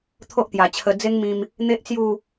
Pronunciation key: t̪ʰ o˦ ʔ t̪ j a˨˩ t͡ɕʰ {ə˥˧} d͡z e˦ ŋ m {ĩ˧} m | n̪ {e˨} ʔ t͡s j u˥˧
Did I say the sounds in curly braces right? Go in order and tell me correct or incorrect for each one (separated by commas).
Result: incorrect, correct, incorrect